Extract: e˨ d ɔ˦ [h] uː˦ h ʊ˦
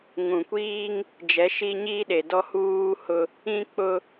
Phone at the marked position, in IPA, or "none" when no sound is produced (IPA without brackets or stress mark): h